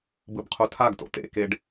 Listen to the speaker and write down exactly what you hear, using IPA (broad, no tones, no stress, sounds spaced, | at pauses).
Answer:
b ɯ b qʰ u tʰ a ɡ t o̰ t̪ ḛ k e ɖ